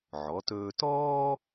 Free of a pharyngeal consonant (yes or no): no